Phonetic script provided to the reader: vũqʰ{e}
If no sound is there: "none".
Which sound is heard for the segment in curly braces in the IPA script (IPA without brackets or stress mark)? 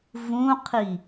i